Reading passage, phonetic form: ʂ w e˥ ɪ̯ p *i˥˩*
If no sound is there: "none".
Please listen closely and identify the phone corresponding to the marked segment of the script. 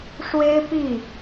i˥˩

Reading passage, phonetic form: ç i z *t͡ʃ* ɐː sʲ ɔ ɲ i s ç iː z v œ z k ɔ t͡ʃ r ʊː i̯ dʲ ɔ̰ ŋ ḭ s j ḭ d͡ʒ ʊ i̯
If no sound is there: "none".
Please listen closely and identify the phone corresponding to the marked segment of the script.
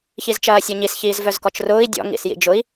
t͡ʃ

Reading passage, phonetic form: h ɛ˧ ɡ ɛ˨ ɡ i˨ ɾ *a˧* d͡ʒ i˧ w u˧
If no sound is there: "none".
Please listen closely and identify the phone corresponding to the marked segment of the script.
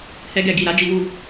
a˨˦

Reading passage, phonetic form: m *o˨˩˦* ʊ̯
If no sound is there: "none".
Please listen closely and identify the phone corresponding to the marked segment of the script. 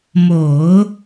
o˨˩˦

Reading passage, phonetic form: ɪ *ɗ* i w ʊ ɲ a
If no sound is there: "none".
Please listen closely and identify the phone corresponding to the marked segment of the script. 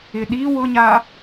ɗ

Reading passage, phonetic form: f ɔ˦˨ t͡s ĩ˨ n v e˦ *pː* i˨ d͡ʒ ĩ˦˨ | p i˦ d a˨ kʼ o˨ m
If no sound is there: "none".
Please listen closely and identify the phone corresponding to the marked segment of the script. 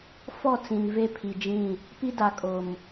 pʰ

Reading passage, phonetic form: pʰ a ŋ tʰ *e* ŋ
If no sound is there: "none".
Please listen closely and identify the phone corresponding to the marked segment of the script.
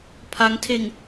e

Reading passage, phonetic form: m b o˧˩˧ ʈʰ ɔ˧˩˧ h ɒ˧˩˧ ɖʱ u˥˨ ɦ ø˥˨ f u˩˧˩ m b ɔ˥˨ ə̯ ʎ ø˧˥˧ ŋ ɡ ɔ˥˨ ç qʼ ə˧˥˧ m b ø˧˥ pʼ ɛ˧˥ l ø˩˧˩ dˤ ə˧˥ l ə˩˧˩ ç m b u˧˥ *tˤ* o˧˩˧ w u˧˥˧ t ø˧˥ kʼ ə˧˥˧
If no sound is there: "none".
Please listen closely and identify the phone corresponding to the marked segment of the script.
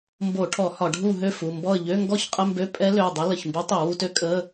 tˤ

